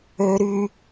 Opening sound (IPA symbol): ø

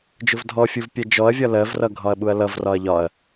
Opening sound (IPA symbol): d͡ʒ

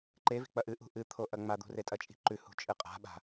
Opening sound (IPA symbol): ǃ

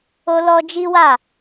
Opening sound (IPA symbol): o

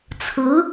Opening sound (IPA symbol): t͡sʰ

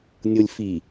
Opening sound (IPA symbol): nʲ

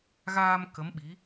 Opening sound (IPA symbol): ɣ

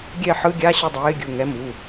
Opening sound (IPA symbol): ɡʲ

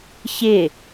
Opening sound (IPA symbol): ç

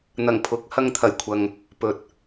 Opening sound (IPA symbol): n̪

